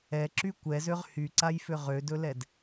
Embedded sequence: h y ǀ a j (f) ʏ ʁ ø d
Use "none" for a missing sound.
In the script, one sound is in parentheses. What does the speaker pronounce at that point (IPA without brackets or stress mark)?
f